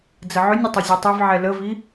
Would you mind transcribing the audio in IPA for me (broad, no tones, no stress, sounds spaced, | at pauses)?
d͡z ə ʕ ø nʲ ə tˤ ɪ zʲ ɛ tˤ ɛ v ʕ ɛ l ə v i